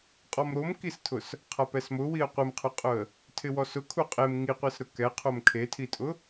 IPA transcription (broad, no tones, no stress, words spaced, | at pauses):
qʼɔmɾomkistʰʊs | qʰapɛsmʊwiə̯ qʷɪmqʰʊqʼʊə̯ | tʰɪwɔsʊkʰu qʼem ŋiqʷisɾʊ kɛqʰom kʰetʰitʼʊ